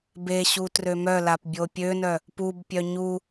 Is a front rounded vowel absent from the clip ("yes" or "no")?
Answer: no